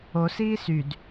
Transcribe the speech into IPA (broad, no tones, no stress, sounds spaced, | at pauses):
o s iː s y d